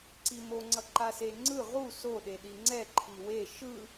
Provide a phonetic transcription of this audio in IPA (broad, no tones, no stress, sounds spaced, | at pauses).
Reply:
ǀ i m o ŋ͡ǀ ʌ ǃ a s e ŋ͡ǀ ɯ ʁ u s o ɗ e ɗ i ŋ͡ǀ ɛ ǃʰ i w e ʃ ɯ